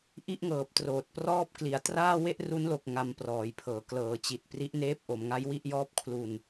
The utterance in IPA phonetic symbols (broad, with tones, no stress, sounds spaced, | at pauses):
ʔ i˥˩ ʔ ŋ ɤː˨˩ p̚ t r oː˨˩ t̚ p r ɔː˥˩ p̚ k l i˩˦ a̯ t r aː˥˩ w e˥˩ ʔ r u˦˥ n l o˨˩ k̚ ŋ a˧ m p r ɔː˩˦ j pʰ ɤː˨˩ k l ɤː˩˦ t͡ɕ i˨˩ t̚ p r i˦˥ ʔ n eː˦˥ p̚ ʔ o˩˦ m ŋ a˦˥ j w i˥˩ ʔ j ɔː˥˩ p̚ kʰ l u˧ n